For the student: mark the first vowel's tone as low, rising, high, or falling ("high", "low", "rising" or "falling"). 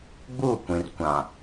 falling